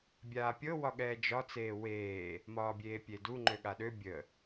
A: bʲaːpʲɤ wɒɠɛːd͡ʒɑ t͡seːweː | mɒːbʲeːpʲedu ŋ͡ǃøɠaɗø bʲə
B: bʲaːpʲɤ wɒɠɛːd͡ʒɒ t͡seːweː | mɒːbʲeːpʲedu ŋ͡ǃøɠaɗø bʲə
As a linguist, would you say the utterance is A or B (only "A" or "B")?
B